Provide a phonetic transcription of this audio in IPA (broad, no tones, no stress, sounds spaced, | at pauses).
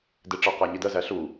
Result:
d ɪ ʈ͡ʂ ʌ q æ ɲ i d ɜ z æ ɬ u